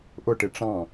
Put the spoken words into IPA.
ʔ ʊ ʈ ɪ ʈ͡ʂ ɑ̃

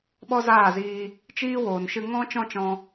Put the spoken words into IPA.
ɓ ɔ˦ z aː˦˨ z iː˧ | t͡ʃ iː˦ w oː˨ n ʃ ɨ˧ ŋ ɔ̃˦ t͡ʃ ɔ̃˦ t͡ʃ ɔ̃˧

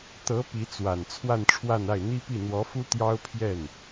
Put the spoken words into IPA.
t̪ ɤ˧˥ p i˧˥ t͡s w a˨˩ n t͡sʰ w a˥˧ n ʈ͡ʂʰ w a˥˧ n a˥˩ ɪ̯ n̪ i˥ p i˥˩ n̪ w ɔ˧˥ f u˥ t̪ j ɑ˥ ʊ̯ pʰ j ɛ˥˩ n

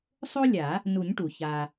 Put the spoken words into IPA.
sˤ o˥ lʲ a˨˩˦ | n u˨˩˦ ɲ ʈ u˩ ç a˩

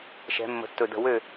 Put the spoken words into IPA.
ʃ ɛ̤˨˦ mː ə̤˨˦ tː ɵ˧˩ d ə̤˧˩ w ø˥˨

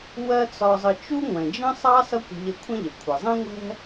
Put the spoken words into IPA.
w ɜ˥ t͡s ɒ˧ zˤ ə˧ t͡ʃ u˥ ŋʷ ɛ̃˩ d͡ʒ ə̃˥ sˤ ɑ˥ s ʌ˥ kʷ ə̤˧ ʎ ə˧ kʷʰ ə̃˥ ʎ ə˩ kʷʰ ə˩ zˤ ɛ̃˥ ŋʷ ɛ̤˥

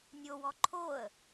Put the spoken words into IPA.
nʲ o w ɔ ǃʰ o ə̯

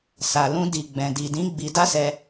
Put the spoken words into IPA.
s a˨ l ũ˧ d i˨ ɡ͡b ɛ̃˨ d i˨ d ĩ˨˦ ɡ͡b i˧ d a˦ s ɛ˧

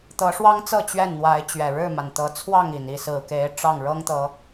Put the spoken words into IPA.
t̪ ɤ˨˦ ʂ w ɑ˦ ŋ t͡s ɤ˥˨ t͡ɕ ɥ ɛ˥˨ n n̪ w a˨˦ ɪ̯ t͡ɕ ɥ ɛ˨˩ ɻ ɻ̩˥˨ m a˩ n t̪ ɤ˨˦ t͡sʰ w ɑ˥˨ ŋ i˨˩ n i˥˨ s ɹ̩˨˩ k e˨˦ ɪ̯ ʈ͡ʂ ɑ˥˨ ŋ ɻ ɤ˦ ŋ t̪ ɤ˨˦

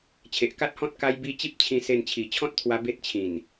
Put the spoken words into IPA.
t͡ɕʰ e˨ ʔ k a˦ t̚ h ɔ̃˦ t̚ k a˦ j b i˦ t͡ɕ i˦ p̚ t͡ɕʰ ĩ˧ s e˧ n t͡ɕʰ i˨˩ t͡ɕʰ ɔ̃˦ t̚ t̪ʰ w a˧ b e˦ t̚ t͡ɕʰ ĩ˨˩ n

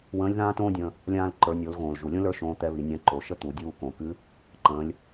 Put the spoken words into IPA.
w ə̃ː˧˥ lʲ ð ãː˥ t õː˥ dʲ ə̃ː˧ | lʲ ãː˧ l ǃ ə˞˩˧ nʲ o˩˧ l ɣ õː˩ l ʒ u˩ lʲ õ˥ l ə˞˥ ʃ õː˧˥ t̪ ɛ˧˥ β i˩˧ nʲ ã˧˥ ǃ o˩˧ ʃ ə˥ t̪ u˩˧ dʲ uː˧ k õ˩ k ɨ˧˥ | ǃ ə̃ː˩˧ lʲ

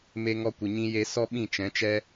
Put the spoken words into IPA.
m e˧ ŋ ɔ˧ kʷ ɨ˨ ɲ ĩ˧ j e˧ s ɔ˦ ɓ ĩ˦˨ t͡ʃ ɛ̃˨˦ t͡ʃ ɛ˦

